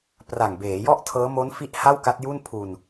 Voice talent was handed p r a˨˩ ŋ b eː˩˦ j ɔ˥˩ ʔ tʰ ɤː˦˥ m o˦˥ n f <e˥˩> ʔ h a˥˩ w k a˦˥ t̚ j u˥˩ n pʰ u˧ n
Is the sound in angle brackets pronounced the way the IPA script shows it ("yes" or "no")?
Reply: no